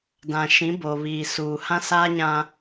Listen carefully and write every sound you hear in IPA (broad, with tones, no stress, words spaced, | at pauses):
dã˨ʃĩ˨˦ bo˨βiː˨ suː˨hã˦ saː˦ɲã˦